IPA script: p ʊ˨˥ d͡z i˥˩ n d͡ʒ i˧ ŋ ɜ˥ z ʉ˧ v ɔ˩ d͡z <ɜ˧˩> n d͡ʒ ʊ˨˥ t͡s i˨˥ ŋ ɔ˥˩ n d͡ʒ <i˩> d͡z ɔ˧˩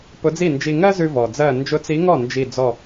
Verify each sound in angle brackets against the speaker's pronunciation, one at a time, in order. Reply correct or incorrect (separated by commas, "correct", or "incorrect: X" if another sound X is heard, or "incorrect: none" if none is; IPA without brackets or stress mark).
correct, incorrect: i˧˩